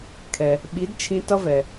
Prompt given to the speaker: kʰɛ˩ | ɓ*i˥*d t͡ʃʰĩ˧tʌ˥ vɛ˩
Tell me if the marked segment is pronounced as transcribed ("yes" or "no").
no